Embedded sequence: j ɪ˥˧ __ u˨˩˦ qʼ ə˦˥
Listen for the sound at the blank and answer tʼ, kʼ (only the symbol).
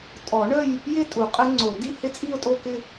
tʼ